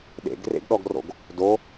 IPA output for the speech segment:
ɗ ḛ ɡ r ḛ ɡ ɗ ɔ ɡ r o̰ ɡ | d o

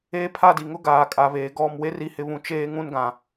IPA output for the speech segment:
eː˦ pʰ a˦˨ d i˨ ŋ ʊ˦ ɡ aː˨ kʼ a˨ β eː˨ ɡ ɔ˦˨ m w e˦ r i˨˦ h ɪ˨ β ũ˨ t͡ʃ eː˦ ŋ ũ˦ n ɡ ã˨

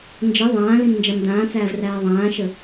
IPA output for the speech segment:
n d͡ʒ ə ðˤ ãː l ĩ m n d͡ʒ a m d ãː t͡s æː v r æː ðˤ ãː ʃ ə

